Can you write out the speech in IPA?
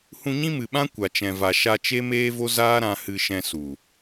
hũ˧ɲĩ˦mɨ˨ɓã˦ kʷa˨t͡ʃɛ̃˨va˨ ʃa˧t͡ʃe˦meː˦vo˦ zaː˦ɾã˧ hɨ˧ʃɛ̃˧su˨

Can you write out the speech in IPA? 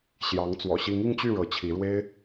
ɕjɑ˧˥ŋ t͡swɔ̰˨˩ɕi˧˥ŋi˥˧ŋt͡ɕy˥˩ ɻɤ˧˥t͡ɕʰi˧˥ ɻwe˥ɪ̯

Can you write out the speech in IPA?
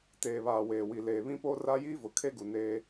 teː˨βaː˨ weː˨ wi˨ leː˨βĩ˦ poː˦ra˦jiː˦vʊ˨ kʰe˦ɡu˨ neː˦

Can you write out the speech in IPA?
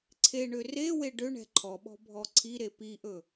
ǀʰeɳø rewe ɖøɳɛ̤ ǃʰɔɓɔ̤ bʱɔǀʰiɾe piʔɵ

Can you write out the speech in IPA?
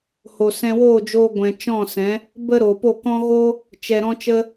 ho˨sɛ̃˧woː˦˨ d͡ʒoː˧ɡʷɛ̃˨ t͡ʃɔ̃˦˨sɛ̃˨˦ | bə˦ɾoː˨po˦˨kɔ̃˦ ɣo˦ | t͡ʃɛ˨ɾɔ̃˧ t͡ʃə˧

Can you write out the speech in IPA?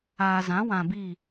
aː˨zã˨˦wã˨bi˦˨

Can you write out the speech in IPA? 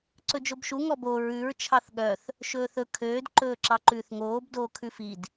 ǀɵd͡ʒobʃu ŋɔbo ɹʉɹ t͡ʃʰɑθɠœθ | ʃɵːθɵ kʰøːd ǃɵːǁɑǃʉːθŋoːb doːkʰʉfid

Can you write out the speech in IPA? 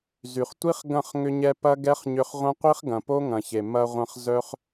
zy˨χtʷi˦χ ɡɐ̃˦˨χŋʏ˧ɲɛ˧ pɐ˦ɡɛ˦χɲʏ˧χ ʁʷɐ̃˦qʷi˦χɡɐ̃˨po˦ ŋɐ̃˨çe˨ mɐ˧ʁʷɐ̃˧χ zœ˧χ

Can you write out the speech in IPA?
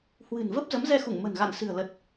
hwɨ̤˨˩n və˦˥p̚ zə˨˦mzɛ˧xu˧˩ŋ mə̤˨˩nɣa̰˧˨n sɨ̤˨˩ə̯lə˨˩t̚

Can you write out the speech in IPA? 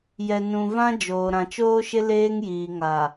jɛ˨ nũ˨vã˦ d͡ʒoː˨ ɾã˨t͡ʃoː˦ʃɪ˦ leː˦ŋjiː˨ŋa˨

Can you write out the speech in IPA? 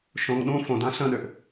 ʃõŋ ɗũ fõdã ɬə̃ɗøʔ

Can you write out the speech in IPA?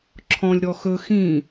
ǁʰɔ̃lʲ ɾɔxɵ xĩ

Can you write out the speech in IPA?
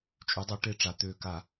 t͡ʃʼy˩˧dˤo˩˧ ʈe˧˩ʈ͡ʂa˩ t̪øː˧˩ka˧˩˧

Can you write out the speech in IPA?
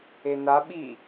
ena ɓi

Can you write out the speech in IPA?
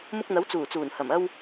mʊ˧k̚n̪ɐ˨˥w t͡suː˨˩t͡suː˨˩n hɐ˨˩mɐ˧w

